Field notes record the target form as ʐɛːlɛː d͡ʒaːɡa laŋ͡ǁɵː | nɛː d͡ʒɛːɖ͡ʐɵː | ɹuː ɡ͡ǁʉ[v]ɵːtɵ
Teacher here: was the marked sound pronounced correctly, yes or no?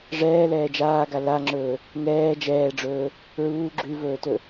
yes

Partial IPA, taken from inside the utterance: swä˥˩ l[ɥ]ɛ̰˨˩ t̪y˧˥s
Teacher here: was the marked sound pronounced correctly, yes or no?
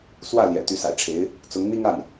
no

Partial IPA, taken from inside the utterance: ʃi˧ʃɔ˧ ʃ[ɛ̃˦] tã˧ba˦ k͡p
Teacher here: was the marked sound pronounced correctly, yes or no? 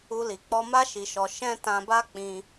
yes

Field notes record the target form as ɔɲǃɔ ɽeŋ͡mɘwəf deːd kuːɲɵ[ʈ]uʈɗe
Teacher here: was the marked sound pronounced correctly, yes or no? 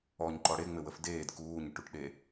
yes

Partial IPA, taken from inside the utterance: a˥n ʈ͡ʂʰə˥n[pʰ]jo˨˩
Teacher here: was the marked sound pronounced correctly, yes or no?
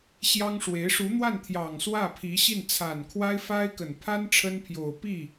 yes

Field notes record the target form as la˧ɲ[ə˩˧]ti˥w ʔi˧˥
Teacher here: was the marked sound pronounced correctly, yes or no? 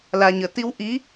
yes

